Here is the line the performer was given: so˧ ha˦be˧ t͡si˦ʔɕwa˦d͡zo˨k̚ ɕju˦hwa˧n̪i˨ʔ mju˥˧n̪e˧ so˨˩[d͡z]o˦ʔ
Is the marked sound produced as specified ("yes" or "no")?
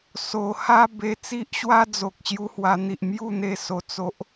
no